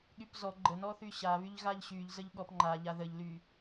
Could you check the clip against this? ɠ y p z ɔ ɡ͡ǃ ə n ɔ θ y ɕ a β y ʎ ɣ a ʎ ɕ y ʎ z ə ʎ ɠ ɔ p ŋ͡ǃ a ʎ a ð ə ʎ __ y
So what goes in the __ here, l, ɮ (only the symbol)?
l